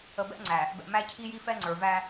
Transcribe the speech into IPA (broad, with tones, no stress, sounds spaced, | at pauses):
ə˨ b ɛ̰˦ ŋ͡ǀ æ˨ | b ɛ̰˨ m æ˦ cʰ i˦ j i˦ f ɛ˦ ŋ͡ǀ ə˞˨ v æ˦